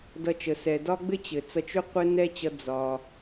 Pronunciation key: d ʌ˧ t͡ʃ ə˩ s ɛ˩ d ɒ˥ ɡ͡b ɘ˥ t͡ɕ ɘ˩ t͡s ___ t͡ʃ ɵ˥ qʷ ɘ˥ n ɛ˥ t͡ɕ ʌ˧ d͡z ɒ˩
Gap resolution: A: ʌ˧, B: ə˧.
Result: A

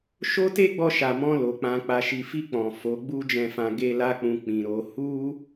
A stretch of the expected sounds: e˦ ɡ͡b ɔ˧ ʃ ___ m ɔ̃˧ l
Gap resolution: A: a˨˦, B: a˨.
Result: B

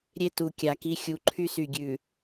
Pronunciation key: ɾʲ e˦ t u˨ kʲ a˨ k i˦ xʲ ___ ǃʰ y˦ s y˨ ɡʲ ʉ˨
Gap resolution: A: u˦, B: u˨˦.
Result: B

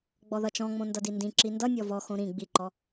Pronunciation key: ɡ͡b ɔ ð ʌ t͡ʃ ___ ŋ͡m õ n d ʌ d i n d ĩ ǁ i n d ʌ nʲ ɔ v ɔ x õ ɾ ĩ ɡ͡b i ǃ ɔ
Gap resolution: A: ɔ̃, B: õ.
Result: A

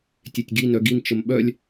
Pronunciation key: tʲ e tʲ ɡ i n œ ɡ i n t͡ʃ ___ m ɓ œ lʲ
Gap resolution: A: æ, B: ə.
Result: B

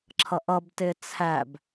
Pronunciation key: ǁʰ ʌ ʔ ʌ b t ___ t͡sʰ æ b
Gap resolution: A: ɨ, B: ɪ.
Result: B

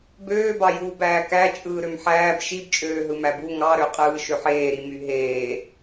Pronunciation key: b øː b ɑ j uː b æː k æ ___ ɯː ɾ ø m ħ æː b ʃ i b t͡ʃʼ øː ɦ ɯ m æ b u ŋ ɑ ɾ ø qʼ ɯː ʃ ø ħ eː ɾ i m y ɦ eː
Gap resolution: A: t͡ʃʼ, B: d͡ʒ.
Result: A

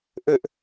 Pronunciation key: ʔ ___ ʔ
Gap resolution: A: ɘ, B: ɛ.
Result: A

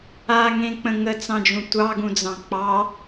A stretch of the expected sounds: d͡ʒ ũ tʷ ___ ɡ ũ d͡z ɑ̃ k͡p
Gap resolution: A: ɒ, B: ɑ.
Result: B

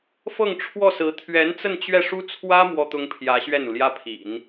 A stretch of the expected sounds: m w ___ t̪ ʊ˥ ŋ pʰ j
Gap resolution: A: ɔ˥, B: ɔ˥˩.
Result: A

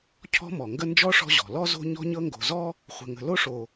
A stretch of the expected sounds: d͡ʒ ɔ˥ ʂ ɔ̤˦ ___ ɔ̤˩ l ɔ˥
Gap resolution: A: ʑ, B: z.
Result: A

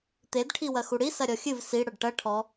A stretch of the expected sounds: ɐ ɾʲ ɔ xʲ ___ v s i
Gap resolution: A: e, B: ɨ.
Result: B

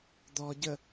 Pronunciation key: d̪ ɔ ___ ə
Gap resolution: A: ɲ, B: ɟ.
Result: B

